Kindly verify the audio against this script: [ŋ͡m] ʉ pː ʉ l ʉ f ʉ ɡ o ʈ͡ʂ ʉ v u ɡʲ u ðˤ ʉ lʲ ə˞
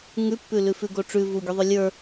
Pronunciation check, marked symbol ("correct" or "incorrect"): incorrect